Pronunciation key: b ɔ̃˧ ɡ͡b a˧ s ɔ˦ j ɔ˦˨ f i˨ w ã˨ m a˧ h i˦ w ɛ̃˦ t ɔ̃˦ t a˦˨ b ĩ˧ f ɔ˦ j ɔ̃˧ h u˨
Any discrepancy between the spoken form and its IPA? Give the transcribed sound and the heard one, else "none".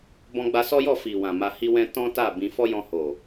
u˨ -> o˨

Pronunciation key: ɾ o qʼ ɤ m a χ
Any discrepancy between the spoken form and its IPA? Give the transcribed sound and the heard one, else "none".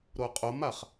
ɤ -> o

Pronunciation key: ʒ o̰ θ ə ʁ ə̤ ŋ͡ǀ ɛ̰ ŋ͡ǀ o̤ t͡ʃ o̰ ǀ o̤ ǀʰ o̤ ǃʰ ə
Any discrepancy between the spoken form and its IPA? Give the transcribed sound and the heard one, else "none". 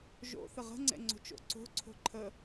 none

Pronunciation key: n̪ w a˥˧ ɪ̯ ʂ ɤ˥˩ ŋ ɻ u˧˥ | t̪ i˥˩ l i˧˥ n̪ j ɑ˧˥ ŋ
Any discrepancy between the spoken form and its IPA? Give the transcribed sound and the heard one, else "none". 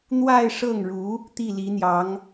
none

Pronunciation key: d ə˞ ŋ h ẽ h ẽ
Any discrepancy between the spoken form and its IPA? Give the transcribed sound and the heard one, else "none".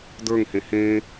none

